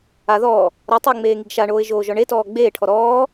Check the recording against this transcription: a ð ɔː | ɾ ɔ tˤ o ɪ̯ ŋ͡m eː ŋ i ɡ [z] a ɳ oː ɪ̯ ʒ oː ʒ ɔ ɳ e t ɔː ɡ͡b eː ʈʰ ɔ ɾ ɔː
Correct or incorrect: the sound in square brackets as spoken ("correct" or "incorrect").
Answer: incorrect